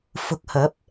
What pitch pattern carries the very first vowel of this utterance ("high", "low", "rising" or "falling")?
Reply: rising